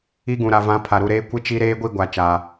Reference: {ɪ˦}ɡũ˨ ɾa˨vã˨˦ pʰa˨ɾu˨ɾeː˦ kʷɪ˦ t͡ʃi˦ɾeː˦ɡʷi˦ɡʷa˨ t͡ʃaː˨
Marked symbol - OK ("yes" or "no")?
no